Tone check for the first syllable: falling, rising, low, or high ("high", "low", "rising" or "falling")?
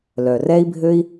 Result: low